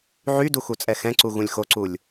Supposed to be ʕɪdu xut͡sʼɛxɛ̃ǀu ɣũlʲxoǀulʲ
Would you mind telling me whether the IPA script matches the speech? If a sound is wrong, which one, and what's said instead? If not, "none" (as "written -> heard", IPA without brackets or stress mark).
ɪ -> y